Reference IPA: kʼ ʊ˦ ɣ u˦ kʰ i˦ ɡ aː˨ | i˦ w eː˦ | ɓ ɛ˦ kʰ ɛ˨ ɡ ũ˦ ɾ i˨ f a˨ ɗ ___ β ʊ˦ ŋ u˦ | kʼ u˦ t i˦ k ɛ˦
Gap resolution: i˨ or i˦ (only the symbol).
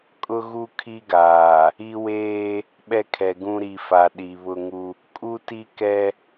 i˨